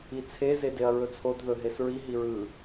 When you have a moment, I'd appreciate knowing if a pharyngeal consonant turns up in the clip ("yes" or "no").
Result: no